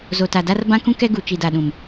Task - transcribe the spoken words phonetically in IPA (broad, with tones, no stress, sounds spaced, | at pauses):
z o˨ t a˨ d a˦ r b ã˦ k ũ˦ k ɛ˦ ɡ u˨ t͡ʃ i˨ d a˨ ɗ ũ˨ m